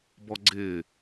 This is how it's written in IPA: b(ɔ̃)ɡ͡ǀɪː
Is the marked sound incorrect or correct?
incorrect